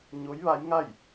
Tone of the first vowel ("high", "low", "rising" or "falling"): rising